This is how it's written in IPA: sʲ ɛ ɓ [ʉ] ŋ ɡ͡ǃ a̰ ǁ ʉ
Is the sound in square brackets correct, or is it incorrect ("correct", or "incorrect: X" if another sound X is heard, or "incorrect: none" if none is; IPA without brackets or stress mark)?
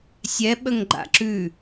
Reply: incorrect: ə